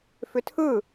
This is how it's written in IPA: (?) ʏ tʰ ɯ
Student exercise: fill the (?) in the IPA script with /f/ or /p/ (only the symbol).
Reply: f